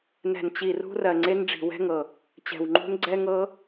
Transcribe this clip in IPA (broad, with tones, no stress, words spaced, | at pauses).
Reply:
nɛ̤˧˩nt͡ɕi˧˩rṳ˦˥rɜ˧˩ ŋ͡ǀe˦˥nɖ͡ʐi̤˧˩wɛ̤˦˥ŋɤ˧˩ | t͡ɕɛ̤˧˩wŋ͡ǃṳ˦˥n ɡ͡ǀɛ˦˥ŋɤ˦˥